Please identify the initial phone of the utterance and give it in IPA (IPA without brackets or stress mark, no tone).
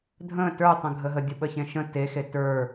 dʱ